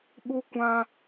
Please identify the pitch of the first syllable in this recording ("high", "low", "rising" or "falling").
high